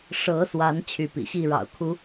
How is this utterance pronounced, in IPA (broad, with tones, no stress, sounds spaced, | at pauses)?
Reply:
ʂ ɤ˨˦ s w a˨˦ n t͡ɕʰ y˨˦ p ḭ˨˩ ɕ i˥˨ ɻ ɑ̰˨˩ ʊ̯ kʰ u˨˦